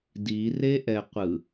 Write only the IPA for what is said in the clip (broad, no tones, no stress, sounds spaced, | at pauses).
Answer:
d i r e ʔ ɛ qʷ ɯ